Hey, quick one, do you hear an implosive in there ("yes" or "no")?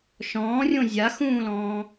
no